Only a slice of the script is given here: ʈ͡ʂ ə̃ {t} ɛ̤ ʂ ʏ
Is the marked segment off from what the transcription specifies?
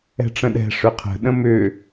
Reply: yes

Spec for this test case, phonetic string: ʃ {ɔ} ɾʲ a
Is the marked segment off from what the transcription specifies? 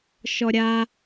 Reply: no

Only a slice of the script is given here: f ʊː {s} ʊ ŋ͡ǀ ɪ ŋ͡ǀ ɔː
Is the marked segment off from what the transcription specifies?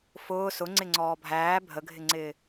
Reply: no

